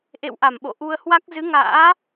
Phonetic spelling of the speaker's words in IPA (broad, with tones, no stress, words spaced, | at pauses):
ʔḛ˧˨wʔa˧˩m ɓo̰˧˨ ʔu˧ə̯hwa˦˥k̚ zɨ˨˦ŋa̰ː˧˥